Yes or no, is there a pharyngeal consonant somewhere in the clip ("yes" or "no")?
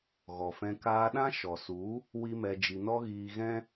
no